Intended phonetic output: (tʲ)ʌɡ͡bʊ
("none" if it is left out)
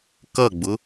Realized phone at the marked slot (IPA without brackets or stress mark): k